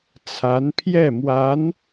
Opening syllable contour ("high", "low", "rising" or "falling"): rising